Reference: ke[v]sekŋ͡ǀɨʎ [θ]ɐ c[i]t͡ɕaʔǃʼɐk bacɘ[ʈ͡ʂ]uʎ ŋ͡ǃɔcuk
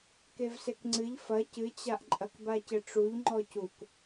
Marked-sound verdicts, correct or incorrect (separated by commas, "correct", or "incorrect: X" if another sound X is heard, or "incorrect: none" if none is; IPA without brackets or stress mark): correct, incorrect: f, incorrect: ɨ, correct